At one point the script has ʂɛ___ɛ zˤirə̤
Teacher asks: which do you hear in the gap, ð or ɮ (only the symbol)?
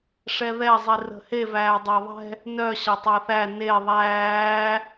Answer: ð